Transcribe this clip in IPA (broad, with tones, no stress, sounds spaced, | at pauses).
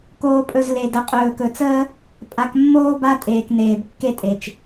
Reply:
k oː˨ pʼ ɵ˨ z l e˨ d ə˨ qʼ ɵː˨ k ɵ˨ t͡s əː˦ | pʼ a˨ k mː oː˦ b a˦ tʼ eː˨ k n eː˨ b kː e˦ tʼ e˨ t͡ʃ